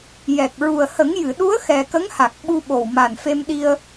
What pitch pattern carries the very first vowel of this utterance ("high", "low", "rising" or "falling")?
low